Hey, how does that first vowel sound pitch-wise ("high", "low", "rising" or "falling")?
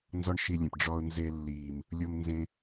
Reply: high